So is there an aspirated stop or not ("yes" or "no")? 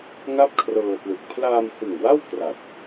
yes